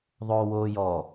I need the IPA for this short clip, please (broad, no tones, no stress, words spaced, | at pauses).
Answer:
ðˤoːwoːjɔ